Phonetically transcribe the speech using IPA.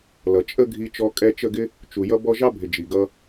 l ʌ˨ t͡ʃʼ ə˦ ɡʱ i˧ t͡ʃ ɔ˧ kʼ ɛ˧ t͡ʃ ə˦˨ ɡ ɪ˦ | t͡ʃ u˨ j ʌ˦ b ɔ˦ ʒ ɑ˦ bʱ ɪ˨ d͡ʒ i˨ ɡ ʌ˧

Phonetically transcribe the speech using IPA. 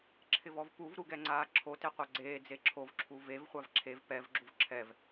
ǁʰ ɪ v ɔ v p u v ɾ u ɡ ɛ ŋ͡ǀ aː ǁʰ o t e qʷ a ɡ͡ǀ eː d͡z e ǁʰ o v ǁʰ u v e v χʷ a v ǁʰ e v p ɛ v ɡ͡ǁ u v ǁʰ ɛ v

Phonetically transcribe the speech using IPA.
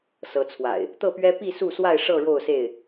s ɤ˨˦ t͡sʰ w a̰˨˩ ɪ̯ | t̪ ɤ˥˨ p ɥ ɛ˦ p i˥˨ s u˥˨ s w a˥˨ ɪ̯ ʂ ɤ˥˨ ɻ o˥˨ ʊ̯ s e˥˨ ɪ̯

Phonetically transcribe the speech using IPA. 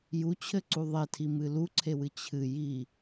j u t͡ɕʰ ɘ ǀ u ðˤ e tʰ i m ɨ l u ǀʰ e w ɨ t͡ɕʰ ɨ j i

